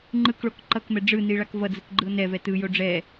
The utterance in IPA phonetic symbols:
ŋ͡ǃ ɯ k ɭ o k ǃ ʌ k m ɛ ɖ͡ʐ ɯ n i ɭ a k v ʌ d͡z ɯ k ɡ͡ǃ ɯ o̯ n ɛ v ɛ t ɯ j o ɖ͡ʐ ɛ

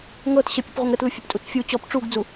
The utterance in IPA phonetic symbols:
ŋ ɤ t ɕ ə pʲ ə p ʁʷ ə ŋ ɾ ə t l u fʲ a p tʼ u t͡s fʲ u t͡ɕ ɔ p ʈ͡ʂ u ɡ d͡z u

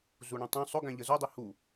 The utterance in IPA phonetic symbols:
z u ɳ ũ tˤ ũ sˤ ʊ ɡ æ̃ ʎ ə z u dˤ i h u

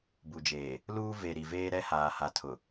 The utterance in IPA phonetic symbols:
b u˨ d͡ʒ eː˨ | l uː˦ v e˨ ɾ i˨ v eː˦ ɾ ɛ˦ h aː˨ h a˨ tʰ ʊ˨

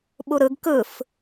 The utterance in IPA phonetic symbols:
ɓ u ɾ ɯ ɡ k ɯ f

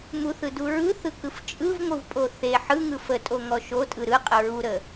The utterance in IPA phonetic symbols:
m u θ ɯ d u ɹ ɯ θ ɯ k ɯ f t͡ʃʼ ɯ v ŋʷ ɯ v pʼ o θ e ħ ɯ ŋ ɯ f ə tʼ o ŋ ɔ ʃ o tʼ ɯ ɾ ɯ qʼ ə ɹ u ɾ ə

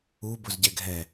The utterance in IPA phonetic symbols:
u b ʊ z ɟ ɛ ɡʱ ɛ

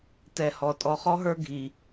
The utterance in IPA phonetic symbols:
t ɛ˨ h ɔ˩ tʼ ɔ˨ χ ɔ˥ ɦ ə˞˦ ɡʱ i˩

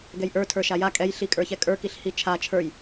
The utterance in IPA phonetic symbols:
ɡ ɛ j ʔ ə˞ tʰ ə˞ ʃ a j a kʼ ɛ j ɬ i kʼ ə˞ ç ɛ kʼ ə˞ k i ɬ h i t͡ʃʰ a t͡ʃʰ ə˞ j

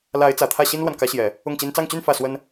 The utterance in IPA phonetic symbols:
l a˧˥ ɪ̯ t͡s ä˨˩ t̪ʰ ä˥˩ ɕ i˥ n l w a˨ n k ä˧˥ ɕ j ɛ˨˩˦ | ʊ˥˩ ŋ t͡ɕ i˥ n t͡s ɑ˥˧ ŋ t͡ɕ y˥˧ n f ä˥˩ s w ə˥ n

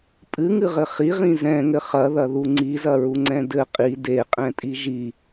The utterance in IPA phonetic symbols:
pʼ ɨ ŋ ɨ ʁ ɘ χ i ʁ ĩ z ɛ̃ ŋ ɘ χ ɐ ð ɐ ð u ŋ͡ǀ i z ɐ ɹ u ŋ͡ǀ ɛ̃ d ɘ qʼ i d e qʼ ɛ̃ tʼ i ʒ i

